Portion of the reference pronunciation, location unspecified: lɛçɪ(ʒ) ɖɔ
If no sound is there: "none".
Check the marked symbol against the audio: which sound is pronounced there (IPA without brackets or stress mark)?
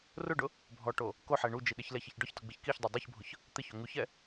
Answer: ç